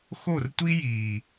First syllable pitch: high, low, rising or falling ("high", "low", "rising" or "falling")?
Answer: falling